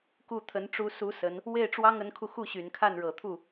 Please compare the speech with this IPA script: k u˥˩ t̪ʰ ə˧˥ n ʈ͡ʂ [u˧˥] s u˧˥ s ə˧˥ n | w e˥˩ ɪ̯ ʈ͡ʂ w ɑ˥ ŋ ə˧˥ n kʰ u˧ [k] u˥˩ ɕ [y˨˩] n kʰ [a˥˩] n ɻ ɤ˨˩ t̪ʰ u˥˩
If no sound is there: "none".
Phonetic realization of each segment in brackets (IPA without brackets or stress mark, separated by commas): u˧˥, x, y˨˩, a˥˩